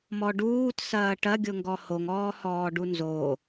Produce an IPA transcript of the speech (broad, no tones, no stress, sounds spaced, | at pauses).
m ɔ ɖ uː t s ɐː ʈ ɐ ɡʲ ʊ ŋ ɡ ɔ h o ŋ ɔː h ɔː ɖ u n z o